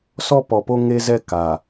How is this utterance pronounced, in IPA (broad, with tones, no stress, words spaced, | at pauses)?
sɔ˦pɔ˨po˦ ŋe˦zɛ˦ ka˨